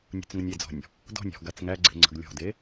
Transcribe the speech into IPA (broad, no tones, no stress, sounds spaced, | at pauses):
nʲ ṳ t͡s ŋ ə nʲ e d͡z ɔ̤ nʲ | d ɔ̤ nʲ ɔ̤ ɡ a t͡s ŋ æ ɡ͡ǀ e̤ ŋ͡ǀ ə̤ ɡ lʲ ɔ̤ d e